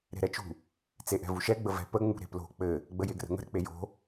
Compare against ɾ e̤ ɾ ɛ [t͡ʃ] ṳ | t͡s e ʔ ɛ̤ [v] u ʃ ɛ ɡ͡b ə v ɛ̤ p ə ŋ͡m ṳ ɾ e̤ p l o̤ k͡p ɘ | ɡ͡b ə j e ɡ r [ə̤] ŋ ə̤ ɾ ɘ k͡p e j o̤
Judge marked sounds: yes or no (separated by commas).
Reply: yes, yes, yes